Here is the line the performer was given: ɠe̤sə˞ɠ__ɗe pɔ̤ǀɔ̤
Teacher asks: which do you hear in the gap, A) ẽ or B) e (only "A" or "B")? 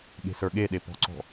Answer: B